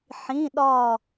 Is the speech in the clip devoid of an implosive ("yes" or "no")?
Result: no